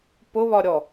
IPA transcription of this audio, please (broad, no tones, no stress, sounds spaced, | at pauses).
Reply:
p ʊ β ɒ ɾʲ ɔ